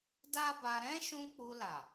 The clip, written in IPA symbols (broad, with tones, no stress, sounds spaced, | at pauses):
d a˦ b a˧ ɾ ɛ̃˦ ʃ ũ˧ k͡p u˧ l a˨